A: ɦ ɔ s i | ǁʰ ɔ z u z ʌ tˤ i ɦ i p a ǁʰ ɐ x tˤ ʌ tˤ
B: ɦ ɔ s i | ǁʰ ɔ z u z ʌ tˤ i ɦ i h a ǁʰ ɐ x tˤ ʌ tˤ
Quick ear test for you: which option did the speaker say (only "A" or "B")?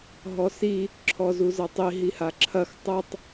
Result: B